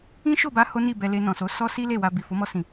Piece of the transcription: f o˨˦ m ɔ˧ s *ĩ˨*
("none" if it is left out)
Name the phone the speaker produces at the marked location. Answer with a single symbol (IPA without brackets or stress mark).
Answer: ĩ˨